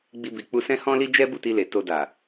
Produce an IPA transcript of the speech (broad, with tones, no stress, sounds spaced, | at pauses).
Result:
ɡ͡b i˧ b i˨ k͡p u˧ s ɛ̃˦ h ɔ̃˦ l i˦ d͡ʒ ɛ˦ b u˦˨ t i˧ l e˨ t o˧ d a˨